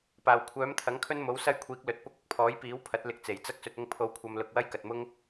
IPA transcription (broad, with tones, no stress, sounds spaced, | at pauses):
p aː˨˩ w kʷʰ œː˨˥ m t̪ʰ ɐ˨˥ ŋ kʰ ɵ˥ n m o˨˥ w s ɐ˥ j kʷʰ iː˨˥ k̚ l ɵ˨ t̚ p ʊ˥ k̚ ʊ˨ k̚ pʰ ɔː˨˥ j p iː˨˥ w pʰ ɐ˨˥ t̚ l ɪ˧ k̚ t͡s e˨˩ j t͡s ɐ˥ k̚ s ɵ˧ t̚ ʊ˥ ŋ pʰ o˧ w kʷʰ ɐ˧ m l ʊ˧ k̚ w ɐ˥ j k ɐ˨ t̚ m ʊ˥ ŋ